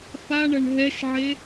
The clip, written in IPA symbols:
f a ɳ ɐ ɳ ɦ ɛ ʃ ʕ e

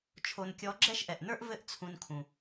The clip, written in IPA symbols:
t͡ʃʰ o˧ n kʲ ɔ˧˥ ɡ͡ǁ ɛ˥ ʃ ʔ ɛ˩ ʔ n ə˞˥ ʔ v ɘ˥ ʔ t͡sʰ ũ˧ n kʰ ũ˩

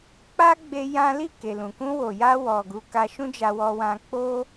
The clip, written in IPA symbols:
k͡p a˦ ɡ͡b e˧ j ã˦ l i˦˨ k e˨ l ũ˨ k ũ˧ w o˨ j a˧ w ɔ˨ ɡ u˨˦ k a˧ ʃ ũ˦ d͡ʒ a˧ w ɔ˧ w ã˧ k͡p o˦

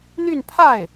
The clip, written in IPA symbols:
n̪ y˥˧ n pʰ a˥˩ ɪ̯

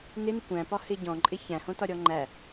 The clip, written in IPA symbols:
n ɪ n ɪ kʷ æ̃ p ɒ h ɪ ɟ ɔ̃ ǃʼ ɪ ç æ̃ h õ t ɒ ɾʲ ɔ ŋ͡ǃ æ

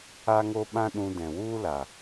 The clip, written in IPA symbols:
a˦ ŋ o˦ ɓ ã˦ ɗ ũ˧ d ɛ̃˨ w u˦ l a˨

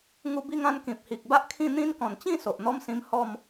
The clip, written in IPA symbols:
ŋ u˧ b i˧ ŋ ã˧ n k ĩ˨ p̚ h i˨ k̚ b a˦ ʔ kʰ ĩ˥˧ n̪ ĩ˦ n k ɔ̃˨˩ n t͡ɕ ĩ˥˧ s o˨ ʔ n̪ ɔ˦ m s ĩ˧ m h ɔ˥˧ m

